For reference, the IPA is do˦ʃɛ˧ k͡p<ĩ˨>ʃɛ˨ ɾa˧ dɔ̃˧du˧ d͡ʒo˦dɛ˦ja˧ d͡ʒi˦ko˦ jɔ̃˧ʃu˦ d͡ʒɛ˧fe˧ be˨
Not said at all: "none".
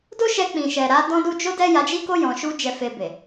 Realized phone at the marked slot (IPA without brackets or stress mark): ĩ˨